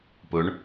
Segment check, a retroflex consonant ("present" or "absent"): present